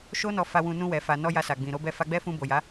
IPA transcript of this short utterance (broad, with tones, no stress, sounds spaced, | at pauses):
ʃ o˦ n ɔ˧ f a˧ w ũ˧ n ũ˧ w ɛ˨ f a˨ n ɔ˧ j a˧ s a˨ ɡ͡b ĩ˨ ɾ o˨˦ b ɛ˦˨ f a˧ ɡ͡b ɛ˦ f ũ˧ b o˨ j a˨˦